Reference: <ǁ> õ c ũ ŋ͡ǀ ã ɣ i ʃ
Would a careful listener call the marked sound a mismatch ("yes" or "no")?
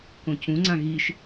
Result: yes